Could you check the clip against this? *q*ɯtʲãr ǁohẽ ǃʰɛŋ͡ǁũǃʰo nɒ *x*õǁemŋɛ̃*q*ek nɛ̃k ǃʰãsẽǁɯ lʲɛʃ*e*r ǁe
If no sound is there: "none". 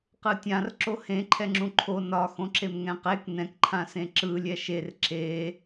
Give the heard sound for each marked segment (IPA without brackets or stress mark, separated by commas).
q, x, q, e